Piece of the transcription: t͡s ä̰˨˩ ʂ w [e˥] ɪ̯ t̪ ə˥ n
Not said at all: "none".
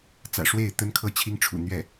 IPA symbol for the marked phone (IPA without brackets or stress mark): e˥˩